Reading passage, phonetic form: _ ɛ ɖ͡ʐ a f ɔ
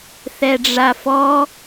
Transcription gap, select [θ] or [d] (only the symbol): θ